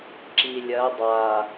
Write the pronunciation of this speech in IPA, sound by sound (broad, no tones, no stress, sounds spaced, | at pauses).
ǁ i lʲ ɜ dˤ a